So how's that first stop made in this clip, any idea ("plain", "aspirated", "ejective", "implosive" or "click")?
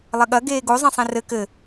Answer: implosive